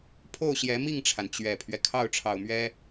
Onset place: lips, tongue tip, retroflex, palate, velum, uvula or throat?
lips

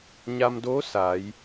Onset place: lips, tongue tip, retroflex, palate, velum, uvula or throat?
palate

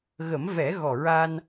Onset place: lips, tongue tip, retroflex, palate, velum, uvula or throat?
velum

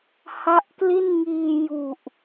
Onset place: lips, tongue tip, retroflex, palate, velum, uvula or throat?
throat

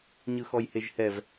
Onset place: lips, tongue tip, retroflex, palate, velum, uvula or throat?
palate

